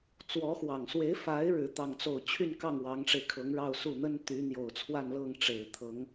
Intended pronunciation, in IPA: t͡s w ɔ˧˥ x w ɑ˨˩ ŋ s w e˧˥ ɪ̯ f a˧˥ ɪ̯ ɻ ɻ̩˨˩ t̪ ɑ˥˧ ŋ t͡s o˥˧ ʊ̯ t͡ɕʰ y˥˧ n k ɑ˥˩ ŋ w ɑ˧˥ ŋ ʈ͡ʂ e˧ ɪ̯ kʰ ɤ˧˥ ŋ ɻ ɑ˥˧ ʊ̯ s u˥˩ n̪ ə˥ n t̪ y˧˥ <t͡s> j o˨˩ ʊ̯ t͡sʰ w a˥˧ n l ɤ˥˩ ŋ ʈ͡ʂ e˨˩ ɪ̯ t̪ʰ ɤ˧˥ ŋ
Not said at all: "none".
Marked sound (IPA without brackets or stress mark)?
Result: n̪